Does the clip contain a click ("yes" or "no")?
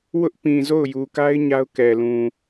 no